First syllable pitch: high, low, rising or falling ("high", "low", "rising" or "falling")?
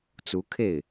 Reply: rising